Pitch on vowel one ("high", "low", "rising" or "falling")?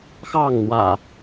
falling